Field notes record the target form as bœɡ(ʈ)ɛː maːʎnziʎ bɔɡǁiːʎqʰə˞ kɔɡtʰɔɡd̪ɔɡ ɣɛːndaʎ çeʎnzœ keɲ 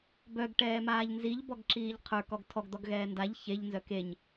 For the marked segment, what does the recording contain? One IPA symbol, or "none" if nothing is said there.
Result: ʈ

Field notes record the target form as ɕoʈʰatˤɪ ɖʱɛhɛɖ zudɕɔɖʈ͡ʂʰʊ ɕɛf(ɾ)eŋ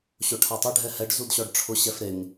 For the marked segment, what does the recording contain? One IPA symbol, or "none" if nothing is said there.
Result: ɾ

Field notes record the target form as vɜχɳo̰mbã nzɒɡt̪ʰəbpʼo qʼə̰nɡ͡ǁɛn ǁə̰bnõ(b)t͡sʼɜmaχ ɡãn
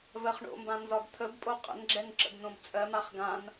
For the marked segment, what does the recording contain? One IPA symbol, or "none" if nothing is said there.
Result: b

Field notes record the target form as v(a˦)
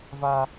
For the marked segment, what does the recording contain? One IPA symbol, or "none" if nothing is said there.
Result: a˦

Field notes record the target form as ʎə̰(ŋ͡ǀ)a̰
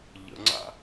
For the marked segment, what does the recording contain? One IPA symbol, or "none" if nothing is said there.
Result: ŋ͡ǀ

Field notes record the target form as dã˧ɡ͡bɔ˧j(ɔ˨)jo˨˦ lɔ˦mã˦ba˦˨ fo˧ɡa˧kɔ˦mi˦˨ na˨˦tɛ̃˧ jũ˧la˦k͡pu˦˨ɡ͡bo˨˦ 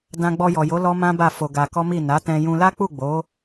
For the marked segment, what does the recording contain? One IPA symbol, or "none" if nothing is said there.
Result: ɔ˨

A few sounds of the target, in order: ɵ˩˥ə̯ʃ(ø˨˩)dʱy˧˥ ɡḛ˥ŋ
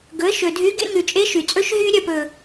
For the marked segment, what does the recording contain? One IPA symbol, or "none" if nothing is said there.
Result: ɵ˨˩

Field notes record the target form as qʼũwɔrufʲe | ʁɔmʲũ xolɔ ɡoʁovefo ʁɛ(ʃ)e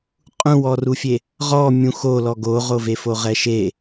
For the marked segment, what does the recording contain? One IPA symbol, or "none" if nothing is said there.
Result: ʃ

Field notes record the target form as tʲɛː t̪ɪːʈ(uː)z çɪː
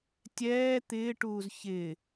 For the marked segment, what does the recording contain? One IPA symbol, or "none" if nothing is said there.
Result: uː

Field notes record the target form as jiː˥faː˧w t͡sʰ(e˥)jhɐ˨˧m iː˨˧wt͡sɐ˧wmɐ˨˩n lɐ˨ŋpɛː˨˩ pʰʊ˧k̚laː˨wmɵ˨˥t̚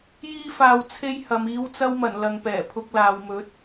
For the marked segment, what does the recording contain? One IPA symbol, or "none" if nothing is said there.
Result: e˥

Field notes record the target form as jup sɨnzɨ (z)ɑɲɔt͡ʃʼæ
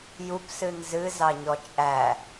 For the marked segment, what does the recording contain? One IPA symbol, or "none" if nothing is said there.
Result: z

